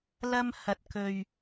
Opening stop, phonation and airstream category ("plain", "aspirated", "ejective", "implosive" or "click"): plain